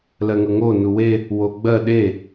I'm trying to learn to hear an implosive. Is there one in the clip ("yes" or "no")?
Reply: yes